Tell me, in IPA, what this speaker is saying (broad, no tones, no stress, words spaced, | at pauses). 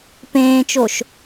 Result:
pẽːt͡ʃoʃ